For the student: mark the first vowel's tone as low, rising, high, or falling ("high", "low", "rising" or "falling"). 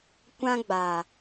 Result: high